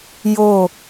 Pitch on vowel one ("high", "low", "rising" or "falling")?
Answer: falling